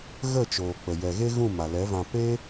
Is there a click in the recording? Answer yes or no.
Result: no